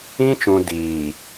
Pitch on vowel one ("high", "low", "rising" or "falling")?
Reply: high